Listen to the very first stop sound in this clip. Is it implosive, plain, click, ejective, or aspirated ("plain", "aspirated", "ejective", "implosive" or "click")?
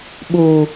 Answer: implosive